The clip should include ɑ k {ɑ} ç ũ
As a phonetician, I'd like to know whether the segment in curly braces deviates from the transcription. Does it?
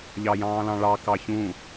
no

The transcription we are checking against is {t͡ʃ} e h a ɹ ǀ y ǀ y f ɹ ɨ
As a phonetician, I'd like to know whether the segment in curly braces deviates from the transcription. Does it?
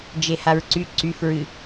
yes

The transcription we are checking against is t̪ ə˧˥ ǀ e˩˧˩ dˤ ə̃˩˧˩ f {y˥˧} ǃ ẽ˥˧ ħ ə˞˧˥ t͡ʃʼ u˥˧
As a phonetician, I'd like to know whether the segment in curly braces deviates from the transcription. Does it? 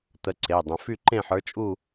no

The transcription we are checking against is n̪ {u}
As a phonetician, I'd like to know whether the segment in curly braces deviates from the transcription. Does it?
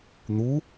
no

